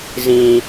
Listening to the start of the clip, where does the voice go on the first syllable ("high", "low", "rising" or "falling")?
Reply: high